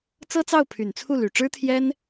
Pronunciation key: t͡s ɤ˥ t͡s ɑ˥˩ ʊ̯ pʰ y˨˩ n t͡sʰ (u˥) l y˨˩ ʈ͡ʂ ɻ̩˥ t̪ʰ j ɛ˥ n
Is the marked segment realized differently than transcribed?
yes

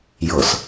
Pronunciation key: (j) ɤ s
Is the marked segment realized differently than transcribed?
no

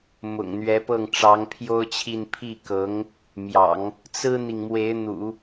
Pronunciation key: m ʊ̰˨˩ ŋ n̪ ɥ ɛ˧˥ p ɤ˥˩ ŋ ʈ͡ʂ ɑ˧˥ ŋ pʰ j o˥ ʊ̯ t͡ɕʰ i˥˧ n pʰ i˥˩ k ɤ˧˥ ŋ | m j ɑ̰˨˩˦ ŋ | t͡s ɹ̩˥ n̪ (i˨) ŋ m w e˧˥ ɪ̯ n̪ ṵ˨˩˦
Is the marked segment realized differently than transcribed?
no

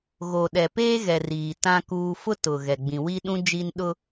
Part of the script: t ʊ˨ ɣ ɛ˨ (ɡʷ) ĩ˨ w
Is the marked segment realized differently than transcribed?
yes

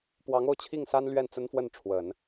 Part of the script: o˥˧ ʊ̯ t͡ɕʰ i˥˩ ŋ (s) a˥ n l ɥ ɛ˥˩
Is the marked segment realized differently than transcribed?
no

